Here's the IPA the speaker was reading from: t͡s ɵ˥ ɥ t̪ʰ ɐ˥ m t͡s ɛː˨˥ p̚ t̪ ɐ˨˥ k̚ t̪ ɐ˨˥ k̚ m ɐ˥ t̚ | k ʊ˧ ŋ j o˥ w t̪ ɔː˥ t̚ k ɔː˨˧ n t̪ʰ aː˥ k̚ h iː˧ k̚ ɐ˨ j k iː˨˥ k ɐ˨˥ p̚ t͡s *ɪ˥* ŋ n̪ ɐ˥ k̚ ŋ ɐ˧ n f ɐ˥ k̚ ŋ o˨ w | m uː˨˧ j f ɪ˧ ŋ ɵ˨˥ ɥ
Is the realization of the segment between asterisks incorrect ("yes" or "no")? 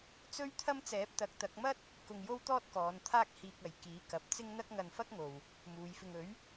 no